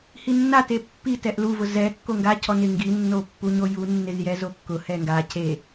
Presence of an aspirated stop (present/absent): present